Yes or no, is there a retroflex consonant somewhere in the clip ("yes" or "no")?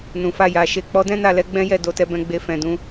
no